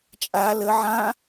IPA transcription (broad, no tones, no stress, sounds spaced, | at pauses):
t͡ʃʼ a l ə ʕ ã